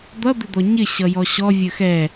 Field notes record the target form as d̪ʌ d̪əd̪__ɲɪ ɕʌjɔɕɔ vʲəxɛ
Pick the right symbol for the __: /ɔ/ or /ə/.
ɔ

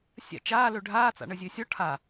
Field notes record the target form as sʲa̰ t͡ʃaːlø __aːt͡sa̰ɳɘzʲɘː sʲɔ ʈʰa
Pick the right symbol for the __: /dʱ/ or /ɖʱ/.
ɖʱ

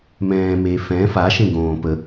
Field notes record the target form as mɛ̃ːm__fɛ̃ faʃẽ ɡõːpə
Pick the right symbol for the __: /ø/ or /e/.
e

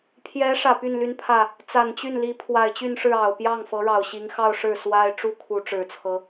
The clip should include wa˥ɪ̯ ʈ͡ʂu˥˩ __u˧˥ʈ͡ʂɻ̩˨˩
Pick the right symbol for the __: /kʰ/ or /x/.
kʰ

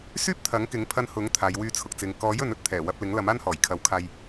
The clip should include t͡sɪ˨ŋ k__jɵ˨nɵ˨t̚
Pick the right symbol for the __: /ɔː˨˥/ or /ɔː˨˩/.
ɔː˨˥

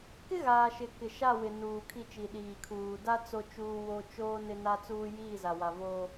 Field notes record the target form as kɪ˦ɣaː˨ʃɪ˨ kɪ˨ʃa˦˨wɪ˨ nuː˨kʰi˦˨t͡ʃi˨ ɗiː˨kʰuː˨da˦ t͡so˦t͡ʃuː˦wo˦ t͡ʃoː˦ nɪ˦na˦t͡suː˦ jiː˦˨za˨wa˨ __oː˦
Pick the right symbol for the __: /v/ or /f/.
v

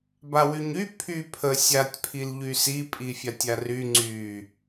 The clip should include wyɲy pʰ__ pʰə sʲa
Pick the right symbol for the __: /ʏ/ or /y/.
y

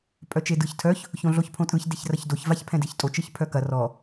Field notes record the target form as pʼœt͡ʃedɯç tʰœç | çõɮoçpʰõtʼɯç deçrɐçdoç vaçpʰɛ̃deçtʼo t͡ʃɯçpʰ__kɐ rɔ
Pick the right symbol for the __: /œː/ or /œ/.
œ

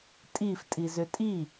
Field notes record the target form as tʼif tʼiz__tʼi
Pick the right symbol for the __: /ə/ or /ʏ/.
ʏ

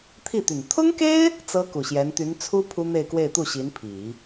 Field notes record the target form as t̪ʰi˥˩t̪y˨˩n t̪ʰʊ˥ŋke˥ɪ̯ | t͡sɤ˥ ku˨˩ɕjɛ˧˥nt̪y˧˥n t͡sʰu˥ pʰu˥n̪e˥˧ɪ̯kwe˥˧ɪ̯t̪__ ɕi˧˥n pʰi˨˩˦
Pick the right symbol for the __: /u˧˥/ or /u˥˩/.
u˥˩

